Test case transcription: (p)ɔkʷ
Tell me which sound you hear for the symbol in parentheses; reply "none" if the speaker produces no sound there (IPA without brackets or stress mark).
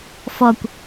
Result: f